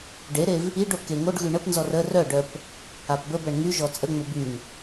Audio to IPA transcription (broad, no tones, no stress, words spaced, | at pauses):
ɖeɾev | iɖo keŋoɖɣy ɳəpnzɔr ə rœɖœp | apbəbɛɳ ŋyʒɔ t͡sʼəŋ͡mə byŋ